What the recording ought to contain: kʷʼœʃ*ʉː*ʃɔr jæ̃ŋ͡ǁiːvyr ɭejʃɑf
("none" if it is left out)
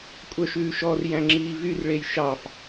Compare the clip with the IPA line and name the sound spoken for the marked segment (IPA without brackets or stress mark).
ʉː